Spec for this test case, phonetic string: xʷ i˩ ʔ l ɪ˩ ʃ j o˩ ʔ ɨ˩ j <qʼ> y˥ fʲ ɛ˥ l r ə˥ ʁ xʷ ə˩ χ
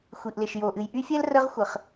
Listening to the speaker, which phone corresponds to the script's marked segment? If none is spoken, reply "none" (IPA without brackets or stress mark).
ʔ